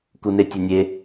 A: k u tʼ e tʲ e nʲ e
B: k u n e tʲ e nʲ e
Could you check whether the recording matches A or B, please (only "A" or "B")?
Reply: B